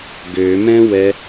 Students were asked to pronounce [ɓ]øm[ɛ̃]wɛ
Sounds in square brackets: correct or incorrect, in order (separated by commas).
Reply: incorrect, correct